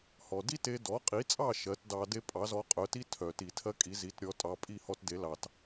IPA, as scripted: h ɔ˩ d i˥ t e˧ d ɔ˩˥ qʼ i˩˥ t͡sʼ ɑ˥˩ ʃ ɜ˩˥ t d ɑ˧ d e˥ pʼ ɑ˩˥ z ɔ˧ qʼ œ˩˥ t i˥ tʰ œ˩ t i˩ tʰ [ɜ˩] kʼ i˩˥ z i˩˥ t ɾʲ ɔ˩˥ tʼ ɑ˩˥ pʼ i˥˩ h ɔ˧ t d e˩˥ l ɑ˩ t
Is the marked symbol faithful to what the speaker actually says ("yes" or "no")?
no